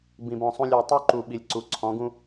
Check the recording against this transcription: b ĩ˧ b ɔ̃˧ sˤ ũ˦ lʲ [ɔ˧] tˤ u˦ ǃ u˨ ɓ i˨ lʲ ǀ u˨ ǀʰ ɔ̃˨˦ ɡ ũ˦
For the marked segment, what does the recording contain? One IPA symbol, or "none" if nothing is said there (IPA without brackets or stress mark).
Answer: ɔ˧